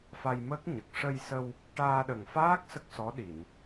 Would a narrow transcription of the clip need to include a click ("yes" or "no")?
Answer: no